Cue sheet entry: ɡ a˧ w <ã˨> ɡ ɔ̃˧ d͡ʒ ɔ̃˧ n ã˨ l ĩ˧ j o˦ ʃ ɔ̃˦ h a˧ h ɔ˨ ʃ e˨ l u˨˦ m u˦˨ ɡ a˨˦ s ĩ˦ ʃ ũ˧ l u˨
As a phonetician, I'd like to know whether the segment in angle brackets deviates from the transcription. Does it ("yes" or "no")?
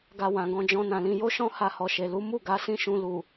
no